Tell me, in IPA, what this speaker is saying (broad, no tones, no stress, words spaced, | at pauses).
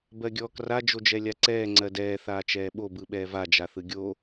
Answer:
bɜɡʲɔːkra d͡ʒod͡ʒɛlʲaǀɛː ŋ͡ǀɜdɛː θaːt͡ʃɛːɓo bɯɓɛːva d͡ʒaθɯɡʲo